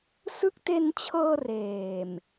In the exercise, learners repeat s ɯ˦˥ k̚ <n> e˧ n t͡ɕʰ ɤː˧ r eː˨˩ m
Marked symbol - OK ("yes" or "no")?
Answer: no